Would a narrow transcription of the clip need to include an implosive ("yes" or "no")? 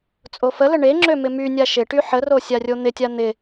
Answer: no